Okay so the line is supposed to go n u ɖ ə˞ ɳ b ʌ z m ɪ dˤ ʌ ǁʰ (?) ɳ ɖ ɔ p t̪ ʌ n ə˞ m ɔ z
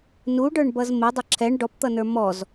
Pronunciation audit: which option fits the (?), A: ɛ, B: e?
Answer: A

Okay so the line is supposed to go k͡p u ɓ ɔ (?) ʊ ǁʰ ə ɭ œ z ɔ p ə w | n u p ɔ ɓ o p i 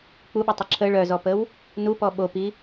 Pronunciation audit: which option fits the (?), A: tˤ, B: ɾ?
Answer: A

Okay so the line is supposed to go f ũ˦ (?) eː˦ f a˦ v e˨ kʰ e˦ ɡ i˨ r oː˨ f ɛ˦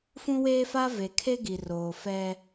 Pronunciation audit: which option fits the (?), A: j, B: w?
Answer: B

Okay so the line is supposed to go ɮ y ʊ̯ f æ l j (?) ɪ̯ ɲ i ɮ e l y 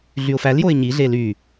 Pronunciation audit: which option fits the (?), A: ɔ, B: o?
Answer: B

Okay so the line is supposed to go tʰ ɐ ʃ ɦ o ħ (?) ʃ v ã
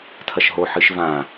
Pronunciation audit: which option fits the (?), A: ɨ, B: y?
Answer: A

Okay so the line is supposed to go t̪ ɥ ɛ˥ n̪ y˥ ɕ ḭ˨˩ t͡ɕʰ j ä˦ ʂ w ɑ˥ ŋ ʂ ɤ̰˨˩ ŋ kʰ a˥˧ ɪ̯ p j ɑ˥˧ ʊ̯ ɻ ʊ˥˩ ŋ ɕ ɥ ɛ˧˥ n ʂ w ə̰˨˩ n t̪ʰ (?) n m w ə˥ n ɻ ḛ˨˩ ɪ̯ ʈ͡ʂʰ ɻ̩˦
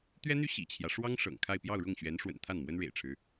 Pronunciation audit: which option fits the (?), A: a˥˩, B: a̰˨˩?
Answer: A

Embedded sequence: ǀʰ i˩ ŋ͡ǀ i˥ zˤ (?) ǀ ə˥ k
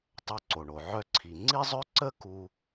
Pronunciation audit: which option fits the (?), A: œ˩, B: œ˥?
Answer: B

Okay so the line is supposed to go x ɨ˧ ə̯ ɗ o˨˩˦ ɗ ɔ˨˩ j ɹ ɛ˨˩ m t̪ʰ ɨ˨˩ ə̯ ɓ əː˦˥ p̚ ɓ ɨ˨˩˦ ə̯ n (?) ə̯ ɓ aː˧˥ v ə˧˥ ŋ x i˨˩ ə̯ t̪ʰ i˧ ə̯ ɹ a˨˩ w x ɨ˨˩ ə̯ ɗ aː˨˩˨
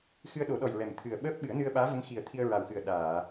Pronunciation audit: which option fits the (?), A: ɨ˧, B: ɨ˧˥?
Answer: A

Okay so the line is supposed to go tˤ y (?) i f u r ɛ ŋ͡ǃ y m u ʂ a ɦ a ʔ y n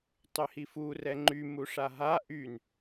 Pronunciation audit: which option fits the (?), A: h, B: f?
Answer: A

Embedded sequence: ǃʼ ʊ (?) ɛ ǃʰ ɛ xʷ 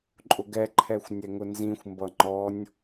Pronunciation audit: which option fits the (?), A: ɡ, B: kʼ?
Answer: A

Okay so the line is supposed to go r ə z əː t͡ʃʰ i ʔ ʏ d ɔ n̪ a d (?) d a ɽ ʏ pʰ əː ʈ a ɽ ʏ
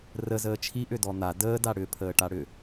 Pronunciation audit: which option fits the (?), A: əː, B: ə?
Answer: A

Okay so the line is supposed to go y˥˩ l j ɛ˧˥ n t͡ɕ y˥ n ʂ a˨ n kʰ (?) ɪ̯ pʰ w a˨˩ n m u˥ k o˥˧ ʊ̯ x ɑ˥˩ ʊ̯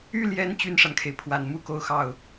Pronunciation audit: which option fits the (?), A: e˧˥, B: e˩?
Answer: B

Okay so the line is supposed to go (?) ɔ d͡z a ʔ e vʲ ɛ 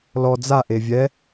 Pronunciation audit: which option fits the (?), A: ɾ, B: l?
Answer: B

